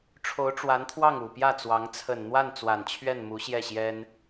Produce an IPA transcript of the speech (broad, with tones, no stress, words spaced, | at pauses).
ʈ͡ʂʰo˧˥ʊ̯ʈ͡ʂwa˧˥nt̪ʰwɑ˥˩ŋ u˨˩pjä˥˩t͡swɑ˧˥ŋ t͡sʰə˨˩nn̪wa˥˩n t͡swa˨˩n t͡ɕʰɥɛ˥˩n mu˧˥ɕjɛ˥˩ɕjɛ˥n